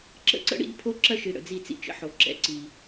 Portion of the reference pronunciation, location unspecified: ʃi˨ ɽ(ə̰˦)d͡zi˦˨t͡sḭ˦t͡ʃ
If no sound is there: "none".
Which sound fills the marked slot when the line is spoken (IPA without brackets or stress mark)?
ə̰˨